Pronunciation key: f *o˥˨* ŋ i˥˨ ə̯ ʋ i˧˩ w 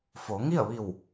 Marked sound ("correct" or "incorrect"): incorrect